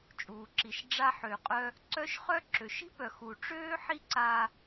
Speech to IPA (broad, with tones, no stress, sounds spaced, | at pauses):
t͡ʃʼ uː˩ ǁ i˩ ʃ ɖ͡ʐ a˧ ħ ø˩ qʼ œ˧ | ǀ œ˥ ʃ χ œ˥ ǁ ø˩ ʃ i̤˥ p œ˩ x u˩ ʈ͡ʂ øː˥ ħ i˥ ǀ aː˧